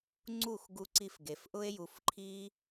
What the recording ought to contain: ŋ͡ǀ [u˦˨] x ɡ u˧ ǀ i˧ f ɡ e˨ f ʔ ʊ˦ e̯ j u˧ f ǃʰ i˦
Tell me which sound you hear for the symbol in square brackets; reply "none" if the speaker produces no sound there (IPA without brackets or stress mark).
u˦˨